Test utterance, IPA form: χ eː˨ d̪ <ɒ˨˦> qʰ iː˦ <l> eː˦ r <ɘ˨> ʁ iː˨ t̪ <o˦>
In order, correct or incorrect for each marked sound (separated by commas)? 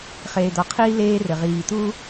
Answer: correct, correct, correct, incorrect